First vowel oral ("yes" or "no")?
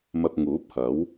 yes